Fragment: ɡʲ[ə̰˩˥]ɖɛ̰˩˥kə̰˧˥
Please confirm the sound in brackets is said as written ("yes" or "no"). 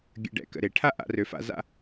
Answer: no